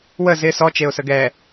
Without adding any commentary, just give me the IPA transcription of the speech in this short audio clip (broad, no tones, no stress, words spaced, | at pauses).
wə zɪ sɔ t͡ʃeʊ̯səɡɛ